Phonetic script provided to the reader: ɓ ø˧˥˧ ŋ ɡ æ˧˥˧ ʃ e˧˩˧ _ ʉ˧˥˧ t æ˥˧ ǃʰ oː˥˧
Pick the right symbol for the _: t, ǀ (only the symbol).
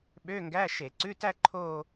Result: ǀ